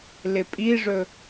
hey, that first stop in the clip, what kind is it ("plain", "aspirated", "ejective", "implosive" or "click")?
ejective